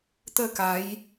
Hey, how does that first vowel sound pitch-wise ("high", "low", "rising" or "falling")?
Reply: falling